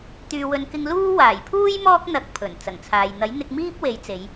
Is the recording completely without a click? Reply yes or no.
yes